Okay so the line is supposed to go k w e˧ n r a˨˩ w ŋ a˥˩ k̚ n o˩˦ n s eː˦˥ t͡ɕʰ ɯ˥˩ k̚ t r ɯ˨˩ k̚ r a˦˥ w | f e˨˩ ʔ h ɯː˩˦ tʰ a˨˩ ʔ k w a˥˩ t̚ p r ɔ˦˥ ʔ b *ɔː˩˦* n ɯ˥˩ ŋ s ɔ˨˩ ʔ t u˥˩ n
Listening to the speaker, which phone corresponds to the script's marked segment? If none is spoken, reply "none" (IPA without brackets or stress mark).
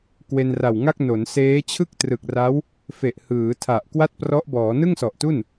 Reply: ɔː˩˦